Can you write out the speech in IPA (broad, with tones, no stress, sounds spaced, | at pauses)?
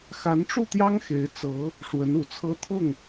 x a˧˥ n ʈ͡ʂ u˥˩ t̪ j ɑ˥ ŋ x e˧˥ ɪ̯ t͡s ɤ˧˥ | ʂ w ə˧˥ n u˨˩ t͡sʰ ɤ˥ t̪ʰ ʊ˥˩ ŋ